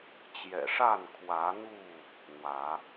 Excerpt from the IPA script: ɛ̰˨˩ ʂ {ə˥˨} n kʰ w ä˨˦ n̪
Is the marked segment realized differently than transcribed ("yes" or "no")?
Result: yes